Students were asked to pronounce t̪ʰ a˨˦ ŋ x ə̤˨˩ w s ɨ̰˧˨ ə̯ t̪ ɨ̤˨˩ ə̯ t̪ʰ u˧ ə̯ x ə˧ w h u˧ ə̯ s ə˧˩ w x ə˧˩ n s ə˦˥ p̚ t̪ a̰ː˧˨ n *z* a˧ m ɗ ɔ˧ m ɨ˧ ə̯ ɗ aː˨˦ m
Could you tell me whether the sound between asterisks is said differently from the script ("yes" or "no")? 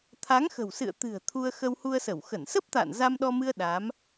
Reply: no